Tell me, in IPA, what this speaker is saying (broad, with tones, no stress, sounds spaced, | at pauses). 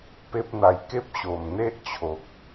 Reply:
p e˦ p̚ n̪ a˧ j k e˦ p̚ ɕ o˨˩ m n̪ e˦ ʔ t͡ɕʰ o˨ k̚